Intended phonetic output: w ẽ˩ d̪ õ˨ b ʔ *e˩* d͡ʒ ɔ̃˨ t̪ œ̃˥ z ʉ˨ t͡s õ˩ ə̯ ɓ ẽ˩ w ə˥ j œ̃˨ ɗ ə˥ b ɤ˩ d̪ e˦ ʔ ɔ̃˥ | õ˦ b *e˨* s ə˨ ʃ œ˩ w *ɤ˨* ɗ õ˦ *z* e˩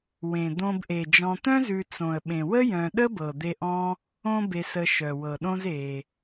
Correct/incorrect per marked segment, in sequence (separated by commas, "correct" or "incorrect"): correct, correct, incorrect, correct